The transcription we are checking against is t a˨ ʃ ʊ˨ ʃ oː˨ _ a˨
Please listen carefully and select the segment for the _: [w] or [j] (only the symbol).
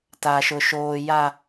j